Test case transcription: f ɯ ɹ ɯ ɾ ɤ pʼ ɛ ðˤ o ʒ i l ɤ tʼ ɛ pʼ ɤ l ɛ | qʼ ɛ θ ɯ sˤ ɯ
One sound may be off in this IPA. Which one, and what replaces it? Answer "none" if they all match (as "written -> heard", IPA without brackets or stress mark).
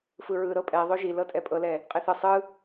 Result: none